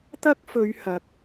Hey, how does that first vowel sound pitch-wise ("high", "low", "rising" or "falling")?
high